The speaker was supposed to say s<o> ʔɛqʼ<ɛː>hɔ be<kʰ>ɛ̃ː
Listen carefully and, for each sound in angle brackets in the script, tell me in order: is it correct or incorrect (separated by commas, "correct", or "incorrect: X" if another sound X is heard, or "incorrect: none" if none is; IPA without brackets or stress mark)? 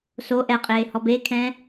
correct, incorrect: eː, correct